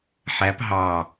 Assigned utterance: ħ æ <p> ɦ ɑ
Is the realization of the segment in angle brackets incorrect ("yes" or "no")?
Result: no